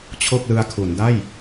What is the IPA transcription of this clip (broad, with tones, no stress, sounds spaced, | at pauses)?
t͡ɕʰ o˥˩ k̚ l ɯ˧ a̯ kʰ u˩˦ n d a˥˩ j